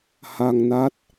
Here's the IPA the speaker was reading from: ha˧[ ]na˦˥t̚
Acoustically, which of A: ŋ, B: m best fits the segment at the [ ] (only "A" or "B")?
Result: A